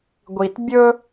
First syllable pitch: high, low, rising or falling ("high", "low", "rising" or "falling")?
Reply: low